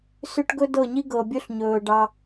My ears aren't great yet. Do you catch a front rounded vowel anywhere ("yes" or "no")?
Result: yes